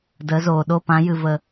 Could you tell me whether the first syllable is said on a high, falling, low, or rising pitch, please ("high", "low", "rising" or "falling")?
rising